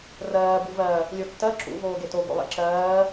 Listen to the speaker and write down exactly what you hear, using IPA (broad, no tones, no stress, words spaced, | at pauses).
rɜː buvɜ | lʲotːɜ ǁṵ voːɡeto ɡo̰lˠḛǁɜː